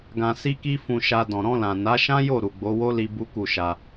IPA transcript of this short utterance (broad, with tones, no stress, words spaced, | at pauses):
ɡã˧si˦ki˦ fũ˧ʃa˧ dɔ̃˨ɾɔ̃˧lã˨ na˨˦ʃã˦jo˦˨ ɾu˨ɡ͡bo˨˦wo˦li˧ bu˦ku˦˨ʃa˧